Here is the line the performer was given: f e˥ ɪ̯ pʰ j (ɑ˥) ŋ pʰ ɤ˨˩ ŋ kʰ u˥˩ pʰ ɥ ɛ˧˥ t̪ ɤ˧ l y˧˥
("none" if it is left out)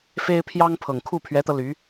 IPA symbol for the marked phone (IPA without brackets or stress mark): ɑ˥